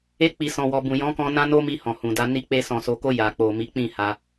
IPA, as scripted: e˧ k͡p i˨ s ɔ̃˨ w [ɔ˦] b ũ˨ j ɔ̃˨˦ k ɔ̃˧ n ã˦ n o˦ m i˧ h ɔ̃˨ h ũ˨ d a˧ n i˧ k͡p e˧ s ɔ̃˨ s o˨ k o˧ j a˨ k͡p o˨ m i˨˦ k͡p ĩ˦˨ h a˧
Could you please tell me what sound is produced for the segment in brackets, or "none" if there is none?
ɔ˨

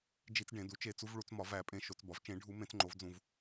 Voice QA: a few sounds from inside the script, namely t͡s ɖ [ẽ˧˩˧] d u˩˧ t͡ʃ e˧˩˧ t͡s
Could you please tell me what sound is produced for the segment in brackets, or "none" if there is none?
ẽ˧˩˧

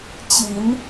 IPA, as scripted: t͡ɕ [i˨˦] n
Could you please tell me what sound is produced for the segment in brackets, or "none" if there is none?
i˨˦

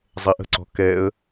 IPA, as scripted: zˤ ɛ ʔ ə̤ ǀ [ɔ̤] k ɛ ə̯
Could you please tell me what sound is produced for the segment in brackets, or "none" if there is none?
ɔ̤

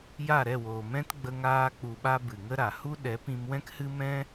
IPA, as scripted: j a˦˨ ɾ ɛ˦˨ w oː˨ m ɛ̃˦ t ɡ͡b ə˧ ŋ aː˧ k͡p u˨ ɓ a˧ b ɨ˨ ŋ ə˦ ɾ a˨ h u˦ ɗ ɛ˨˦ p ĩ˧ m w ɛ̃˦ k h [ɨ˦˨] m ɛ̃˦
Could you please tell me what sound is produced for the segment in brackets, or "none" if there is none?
ɨ˦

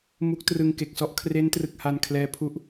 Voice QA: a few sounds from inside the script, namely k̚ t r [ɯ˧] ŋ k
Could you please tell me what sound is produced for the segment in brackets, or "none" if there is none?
ɯ˧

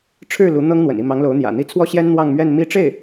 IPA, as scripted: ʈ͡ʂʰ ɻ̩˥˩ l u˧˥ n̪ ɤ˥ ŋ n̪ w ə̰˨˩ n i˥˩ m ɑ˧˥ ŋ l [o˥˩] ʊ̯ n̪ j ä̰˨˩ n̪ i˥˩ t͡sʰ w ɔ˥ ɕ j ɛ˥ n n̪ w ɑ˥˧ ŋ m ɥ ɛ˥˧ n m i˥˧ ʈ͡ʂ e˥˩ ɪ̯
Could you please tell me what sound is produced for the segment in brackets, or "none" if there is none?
o˧˥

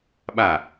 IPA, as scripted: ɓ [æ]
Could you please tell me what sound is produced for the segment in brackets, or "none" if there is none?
a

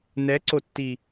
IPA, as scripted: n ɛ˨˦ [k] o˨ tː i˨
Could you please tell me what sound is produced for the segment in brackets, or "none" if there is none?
ǀ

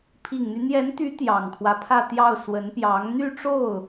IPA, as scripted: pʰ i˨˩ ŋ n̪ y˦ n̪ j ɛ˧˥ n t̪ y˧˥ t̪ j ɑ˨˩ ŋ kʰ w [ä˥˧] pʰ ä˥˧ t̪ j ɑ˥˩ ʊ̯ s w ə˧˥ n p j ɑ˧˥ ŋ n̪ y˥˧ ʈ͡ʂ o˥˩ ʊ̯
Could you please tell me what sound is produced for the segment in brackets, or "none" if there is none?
ä˦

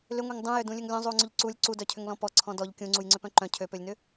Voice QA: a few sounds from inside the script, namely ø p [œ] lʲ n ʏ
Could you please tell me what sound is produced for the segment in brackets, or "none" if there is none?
ø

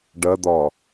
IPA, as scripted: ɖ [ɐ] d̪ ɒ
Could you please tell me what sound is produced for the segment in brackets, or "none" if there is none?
ɐ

